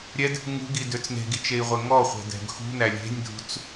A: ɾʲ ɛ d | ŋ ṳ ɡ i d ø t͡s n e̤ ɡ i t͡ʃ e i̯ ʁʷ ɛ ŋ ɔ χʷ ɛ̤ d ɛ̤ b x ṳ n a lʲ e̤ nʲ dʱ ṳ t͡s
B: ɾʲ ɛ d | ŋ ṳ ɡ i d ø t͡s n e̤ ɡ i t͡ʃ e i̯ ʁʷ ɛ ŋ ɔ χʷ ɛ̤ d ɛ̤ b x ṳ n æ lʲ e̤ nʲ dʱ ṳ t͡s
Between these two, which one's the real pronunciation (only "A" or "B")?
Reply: B